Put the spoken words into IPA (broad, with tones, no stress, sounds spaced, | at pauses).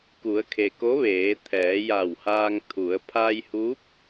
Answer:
k u˩˧ ə̯ kʰ e˩ k o˧˥ ʋ eː˩˧ t̪ʰ ɛː˩˧ j a˧˩ w h aː˧ ŋ t̪ʰ u˩˧ ə̯ pʰ a˧ j h u˧˥ p̚